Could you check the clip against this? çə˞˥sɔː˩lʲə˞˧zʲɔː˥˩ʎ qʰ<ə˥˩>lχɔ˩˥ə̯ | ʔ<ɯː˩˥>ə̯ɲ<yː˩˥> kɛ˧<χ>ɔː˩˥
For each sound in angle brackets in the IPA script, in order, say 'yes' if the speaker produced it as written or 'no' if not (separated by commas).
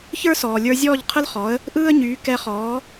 no, no, yes, yes